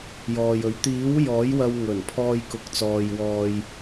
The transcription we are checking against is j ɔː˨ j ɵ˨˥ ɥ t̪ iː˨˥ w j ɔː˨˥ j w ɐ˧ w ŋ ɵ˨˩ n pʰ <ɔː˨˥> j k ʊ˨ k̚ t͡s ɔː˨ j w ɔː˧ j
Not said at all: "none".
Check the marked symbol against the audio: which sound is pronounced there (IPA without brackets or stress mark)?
ɔː˧